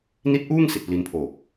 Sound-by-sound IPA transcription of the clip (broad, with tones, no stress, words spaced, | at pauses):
ni˦˥t̚ʔuː˥˩ŋ si˨˩t̚pli˧npʰoː˨˩k̚